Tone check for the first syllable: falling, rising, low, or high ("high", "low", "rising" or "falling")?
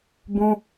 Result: high